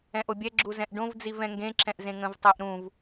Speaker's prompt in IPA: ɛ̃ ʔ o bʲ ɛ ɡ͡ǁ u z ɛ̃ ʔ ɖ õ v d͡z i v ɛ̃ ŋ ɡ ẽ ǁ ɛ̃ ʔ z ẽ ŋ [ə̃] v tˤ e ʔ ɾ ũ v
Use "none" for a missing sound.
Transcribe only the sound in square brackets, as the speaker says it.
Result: ə̃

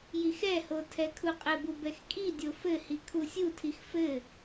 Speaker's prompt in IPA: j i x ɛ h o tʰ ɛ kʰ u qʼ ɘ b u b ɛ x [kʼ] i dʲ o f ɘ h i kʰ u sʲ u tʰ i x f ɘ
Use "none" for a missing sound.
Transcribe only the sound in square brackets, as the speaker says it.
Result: kʼ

